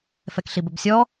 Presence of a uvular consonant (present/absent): absent